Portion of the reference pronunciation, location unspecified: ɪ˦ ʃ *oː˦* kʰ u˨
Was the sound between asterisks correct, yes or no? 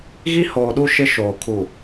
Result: no